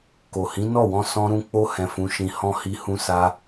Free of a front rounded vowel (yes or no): yes